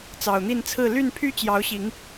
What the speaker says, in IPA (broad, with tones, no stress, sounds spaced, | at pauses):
t͡s ɑ˨˩ ʊ̯ n̪ i˥˨ n t͡sʰ ɹ̩˥˨ l y˥˨ n pʰ y˦ t͡ɕ j ɑ˨˦ ʊ̯ ɕ i˨˦ ŋ